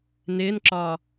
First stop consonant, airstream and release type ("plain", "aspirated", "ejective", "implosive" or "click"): click